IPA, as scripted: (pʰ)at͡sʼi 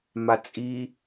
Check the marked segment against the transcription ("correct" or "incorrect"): incorrect